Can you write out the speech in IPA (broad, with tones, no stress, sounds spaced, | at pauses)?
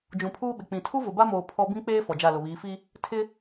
d͡ʒ ũ˨ pʰ uː˦ ɓ ɪ˨ k͡p ĩ˨ tʰ u˦ v ʊ˨ b a˦ m oː˨ pʰ ɔ˦ b ĩ˦ k͡p eː˦ f ɔ˨ d͡ʒ a˦˨ l ʊ˨ β iː˨˦ f i˦ | tʰ ɪ˦